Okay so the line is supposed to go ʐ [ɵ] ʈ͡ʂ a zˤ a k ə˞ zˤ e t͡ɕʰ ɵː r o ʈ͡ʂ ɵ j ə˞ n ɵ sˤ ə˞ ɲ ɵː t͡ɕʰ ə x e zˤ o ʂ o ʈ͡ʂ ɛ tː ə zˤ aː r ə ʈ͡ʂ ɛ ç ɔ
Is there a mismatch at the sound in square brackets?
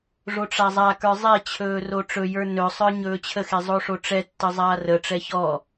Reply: yes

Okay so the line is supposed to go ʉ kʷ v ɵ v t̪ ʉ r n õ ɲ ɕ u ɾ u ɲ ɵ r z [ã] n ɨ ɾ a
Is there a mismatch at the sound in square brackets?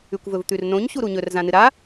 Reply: no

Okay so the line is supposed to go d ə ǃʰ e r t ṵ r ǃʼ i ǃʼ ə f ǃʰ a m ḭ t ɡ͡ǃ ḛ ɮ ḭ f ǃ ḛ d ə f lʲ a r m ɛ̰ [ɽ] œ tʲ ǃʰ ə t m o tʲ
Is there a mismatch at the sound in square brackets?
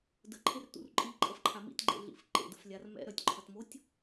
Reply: yes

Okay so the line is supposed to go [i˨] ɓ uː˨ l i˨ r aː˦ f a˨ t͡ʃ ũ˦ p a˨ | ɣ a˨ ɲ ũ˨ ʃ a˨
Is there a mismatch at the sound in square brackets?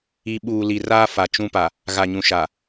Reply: no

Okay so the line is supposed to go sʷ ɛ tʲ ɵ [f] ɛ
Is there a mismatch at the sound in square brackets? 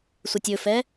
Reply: no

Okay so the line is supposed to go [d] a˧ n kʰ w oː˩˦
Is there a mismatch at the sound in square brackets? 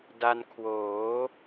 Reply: no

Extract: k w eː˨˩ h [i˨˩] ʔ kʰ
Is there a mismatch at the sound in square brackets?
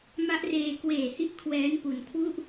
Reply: yes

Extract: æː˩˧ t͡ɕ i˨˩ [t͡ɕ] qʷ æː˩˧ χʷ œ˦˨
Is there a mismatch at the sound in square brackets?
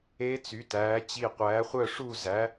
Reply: yes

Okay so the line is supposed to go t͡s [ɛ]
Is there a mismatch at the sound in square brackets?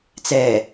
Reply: no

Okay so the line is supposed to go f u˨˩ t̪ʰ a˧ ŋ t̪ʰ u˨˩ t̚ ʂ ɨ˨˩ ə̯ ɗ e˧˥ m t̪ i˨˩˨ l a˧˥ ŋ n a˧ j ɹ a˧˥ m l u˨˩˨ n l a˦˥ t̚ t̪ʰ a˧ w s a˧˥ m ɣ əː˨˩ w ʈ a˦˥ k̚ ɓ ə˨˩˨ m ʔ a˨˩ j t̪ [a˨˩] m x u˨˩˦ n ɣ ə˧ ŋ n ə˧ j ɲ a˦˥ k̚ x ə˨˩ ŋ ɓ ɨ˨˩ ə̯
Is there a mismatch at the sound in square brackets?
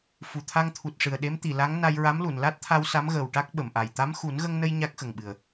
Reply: yes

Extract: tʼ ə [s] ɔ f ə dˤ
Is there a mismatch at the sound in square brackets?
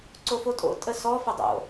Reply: no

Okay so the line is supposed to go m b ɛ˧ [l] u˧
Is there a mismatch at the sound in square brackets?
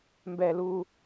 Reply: no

